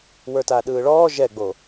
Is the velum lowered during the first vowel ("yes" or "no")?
no